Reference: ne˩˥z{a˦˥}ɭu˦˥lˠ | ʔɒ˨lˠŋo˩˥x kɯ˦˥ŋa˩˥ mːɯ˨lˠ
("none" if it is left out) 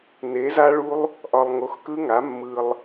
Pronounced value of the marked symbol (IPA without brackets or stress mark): a˦˥